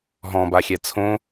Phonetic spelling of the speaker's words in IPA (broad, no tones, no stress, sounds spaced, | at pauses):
ɦ ɔ̃ b a xʲ ɛ t͡sʰ õ